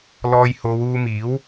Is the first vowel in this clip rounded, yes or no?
yes